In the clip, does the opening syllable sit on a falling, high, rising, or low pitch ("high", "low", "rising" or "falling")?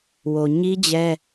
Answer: low